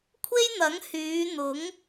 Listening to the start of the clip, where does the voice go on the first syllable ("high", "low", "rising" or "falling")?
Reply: high